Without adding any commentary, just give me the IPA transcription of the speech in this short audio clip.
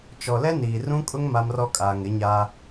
t͡ʃ ɔ˨ l ɛ˦ n iː˨ r ũ˦ kʼ ʊ˦ ŋ m a˦ m r ɔ˦ kʼ aː˨ ŋ ɪ˨˦ ɲ a˦

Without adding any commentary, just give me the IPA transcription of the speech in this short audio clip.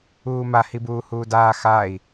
uː m a h i b uː h uː d aː x a i̯

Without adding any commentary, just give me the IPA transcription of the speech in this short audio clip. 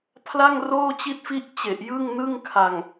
pʰ l a˥˩ ŋ r oː˥˩ t͡ɕ i˦˥ t̚ f i˦˥ ʔ t͡ɕ e˨˩ ʔ j ɯ˥˩ ŋ n ɯ˥˩ ŋ kʰ a˨˩ ŋ

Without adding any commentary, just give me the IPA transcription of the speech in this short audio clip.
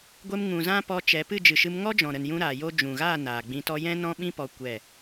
ɡʷ e˧ m ŋ ũ˨ z ã˦ p ɔ˧ t͡ʃ ɛ˨˦ p ɨ˦˨ d͡ʒ ɨ˨ ʃ ɨ˧ m ŋ ɔ˦ d͡ʒ ɔ̃˨ ɾ ə˨ n j ũ˧ ɾ aː˨ j o˧ d͡ʒ ũ˨ ɣ aː˦˨ n aː˨ ɡ͡b ĩ˧ t ɔ˦ j ɛ̃˦ n ɔ̃˦ ɓ ĩ˦ p ɔ˧ kʷ ɛ˦˨

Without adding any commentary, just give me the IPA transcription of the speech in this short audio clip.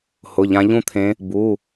h ʊ˩˧˩ ʎ ã˨˦ ʎ ũ˦˨ t̪ʰ ẽ˨˦ | b u˩˧˩

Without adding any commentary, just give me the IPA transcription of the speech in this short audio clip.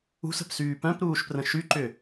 ṳ s ə̤ p s yː p œ̃ p ɾ uː ʃ p r ə̃ ʃ y ǃ ʏ

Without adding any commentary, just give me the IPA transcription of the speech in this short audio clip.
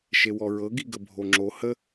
ʃ e w ɔ ɹ ɤ ɡ i ɡ ə bʱ o ŋ͡ǁ o h ə

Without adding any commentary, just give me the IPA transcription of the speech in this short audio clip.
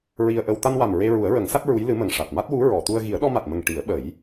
ɹ i˧ ə̯ ʔ ə˧ w t̪ a˧ n w a˨˩ m ɹ e˧ ɹ u˨˩˦ ə̯ ɹ ə˨˩˦ ŋ s a˦˥ t̚ ɹ u˧˥ j l ɨ˧˥ m ə˨˩ ŋ ʂ a˨˩ t̚ m a˦˥ t̚ w u˧˥ ɹ ɔ˨˩˨ t̪ u˧ ə̯ ɣ i˨˩˦ ə̯ ɗ ɔ˧ m a˨˩ t̚ m ə˨˩ ŋ ʈ i˨˩˦ ə̯ ɓ ə˨˩˦ j

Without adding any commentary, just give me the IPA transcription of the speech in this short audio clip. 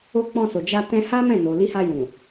o˧ k͡p ɔ̃˧ s o˨ d͡ʒ a˧ t ɛ̃˧ h a˦ m ɛ̃˦˨ n o˨ l i˧ h a˧ j ũ˨

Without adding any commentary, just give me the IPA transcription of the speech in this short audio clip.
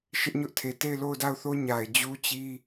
ʃ ɪ˦ ʔ ɲ ʊ˦ ʔ tʰ e˨ t e˦˨ ɪ̯ l o˦˨ ʊ̯ d a˦˨ ʊ̯ θ o˦ ɲ a˨ ɪ̯ d͡ʑ u˦ t͡ɕ i˦

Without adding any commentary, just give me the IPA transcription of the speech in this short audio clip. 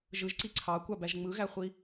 ʒ ɯ ʒ ǀ i ǀʰ ɑ kʷ ɑ b æ ʒ ŋ͡m ɯ ɣ æ χʷ i

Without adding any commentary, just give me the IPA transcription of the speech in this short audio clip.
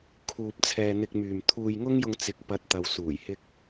kʰ uː˧ p̚ t͡sʰ ɛː˧ n̪ ɪ˧ k̚ m yː˨ m t̪ʰ uː˧ j ŋ ʊ˥ ŋ j ʊ˧ ŋ t͡s ɪ˨ k̚ p ɐ˨ t̚ t̪ ɐ˨ w s uː˨˩ j h ɪ˧ k̚

